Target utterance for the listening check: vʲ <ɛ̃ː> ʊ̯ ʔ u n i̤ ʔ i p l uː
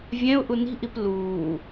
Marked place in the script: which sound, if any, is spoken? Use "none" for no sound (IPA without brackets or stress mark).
ɛ̃